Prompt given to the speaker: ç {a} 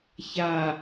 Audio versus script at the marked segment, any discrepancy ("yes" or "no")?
no